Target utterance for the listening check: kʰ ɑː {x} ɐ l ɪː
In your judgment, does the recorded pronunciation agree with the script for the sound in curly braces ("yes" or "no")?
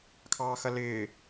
yes